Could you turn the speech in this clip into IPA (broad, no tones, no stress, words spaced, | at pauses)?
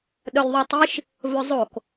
ɗœlʲðˤutˤiʃ | vɵzˤok